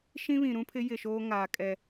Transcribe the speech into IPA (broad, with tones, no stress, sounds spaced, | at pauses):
ʃ ĩ˦ β ĩ˨ ɾ ũ˦ pʰ ɪ˦ j ɪ˦˨ ʃ oː˦ ŋ aː˨ kʼ ɛ˨